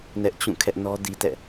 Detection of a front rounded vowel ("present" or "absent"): absent